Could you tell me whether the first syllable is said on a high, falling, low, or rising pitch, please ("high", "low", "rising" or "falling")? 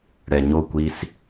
low